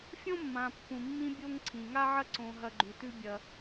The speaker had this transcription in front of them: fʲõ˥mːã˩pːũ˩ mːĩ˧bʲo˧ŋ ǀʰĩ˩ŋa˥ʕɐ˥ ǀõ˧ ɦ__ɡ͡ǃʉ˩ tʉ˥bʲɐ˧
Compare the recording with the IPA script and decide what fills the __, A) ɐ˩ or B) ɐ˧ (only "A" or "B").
B